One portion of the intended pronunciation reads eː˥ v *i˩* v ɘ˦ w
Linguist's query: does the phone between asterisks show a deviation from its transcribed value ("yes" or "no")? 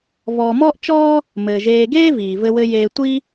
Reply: yes